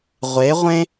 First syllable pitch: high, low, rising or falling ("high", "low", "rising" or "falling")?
rising